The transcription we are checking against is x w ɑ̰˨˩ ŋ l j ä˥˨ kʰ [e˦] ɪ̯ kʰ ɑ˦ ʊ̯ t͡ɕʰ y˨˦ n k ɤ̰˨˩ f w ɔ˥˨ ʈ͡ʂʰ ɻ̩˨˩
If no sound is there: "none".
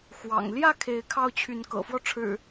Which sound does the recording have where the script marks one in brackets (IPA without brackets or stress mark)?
e˨˦